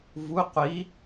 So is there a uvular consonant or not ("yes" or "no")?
yes